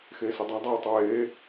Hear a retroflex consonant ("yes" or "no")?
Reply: no